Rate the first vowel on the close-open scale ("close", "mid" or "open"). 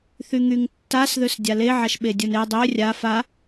close